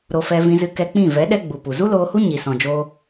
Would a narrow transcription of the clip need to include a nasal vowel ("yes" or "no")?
yes